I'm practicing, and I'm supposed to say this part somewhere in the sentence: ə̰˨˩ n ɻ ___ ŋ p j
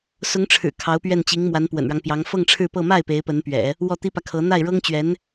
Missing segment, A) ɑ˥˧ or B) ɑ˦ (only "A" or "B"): B